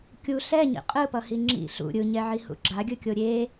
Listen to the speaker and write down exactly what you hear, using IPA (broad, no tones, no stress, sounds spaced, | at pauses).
kʲ u ɬ ɛ ɲ ḭ qʼ ɯ p ʌ h i ŋ͡ǁ ḭ ɬ ṵ ɾʲ ɯ ɲ ɛ ʕ i h ṵ ɡ͡ǁ a ɡʲ ɯ kʲ o ɾʲ e